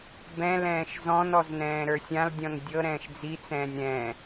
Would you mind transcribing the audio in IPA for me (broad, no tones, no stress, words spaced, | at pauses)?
bɛ̃lɛ̃ːʃ zɔ̃nɔz nɛ̃ːɾə˞sʲãldʲɔ̃n dʲɤɾɛ̃ːʃ d͡zit͡sɛ̃ːnʲ ɾɛ̃ː